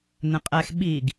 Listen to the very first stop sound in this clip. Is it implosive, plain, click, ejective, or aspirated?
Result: ejective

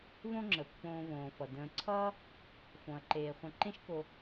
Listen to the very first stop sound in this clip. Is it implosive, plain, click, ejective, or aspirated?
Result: click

